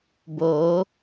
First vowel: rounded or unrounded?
rounded